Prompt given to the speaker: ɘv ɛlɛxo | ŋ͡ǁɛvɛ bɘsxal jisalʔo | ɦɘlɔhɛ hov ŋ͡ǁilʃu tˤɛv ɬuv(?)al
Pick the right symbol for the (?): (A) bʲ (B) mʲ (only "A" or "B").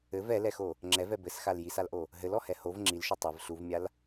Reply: B